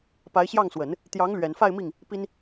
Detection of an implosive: absent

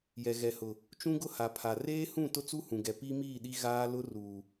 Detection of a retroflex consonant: absent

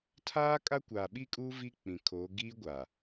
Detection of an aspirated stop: present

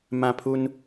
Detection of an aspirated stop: present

